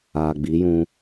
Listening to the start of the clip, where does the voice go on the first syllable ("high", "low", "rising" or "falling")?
low